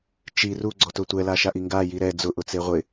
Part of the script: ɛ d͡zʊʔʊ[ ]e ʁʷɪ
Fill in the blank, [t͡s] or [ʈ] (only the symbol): t͡s